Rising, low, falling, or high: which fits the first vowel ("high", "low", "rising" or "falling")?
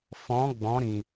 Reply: rising